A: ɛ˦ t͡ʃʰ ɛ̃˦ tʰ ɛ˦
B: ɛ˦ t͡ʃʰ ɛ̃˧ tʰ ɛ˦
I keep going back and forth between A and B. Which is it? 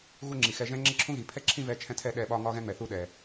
A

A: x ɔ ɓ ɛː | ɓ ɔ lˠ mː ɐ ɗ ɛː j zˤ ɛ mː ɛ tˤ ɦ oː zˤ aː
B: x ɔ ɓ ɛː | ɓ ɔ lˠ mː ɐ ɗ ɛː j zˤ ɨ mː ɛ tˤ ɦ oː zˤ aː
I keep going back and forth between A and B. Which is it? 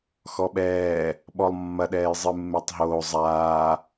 B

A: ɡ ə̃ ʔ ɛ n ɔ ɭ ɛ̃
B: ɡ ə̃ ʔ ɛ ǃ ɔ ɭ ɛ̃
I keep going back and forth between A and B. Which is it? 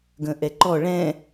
B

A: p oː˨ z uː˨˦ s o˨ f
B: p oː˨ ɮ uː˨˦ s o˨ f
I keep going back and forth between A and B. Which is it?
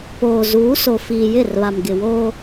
A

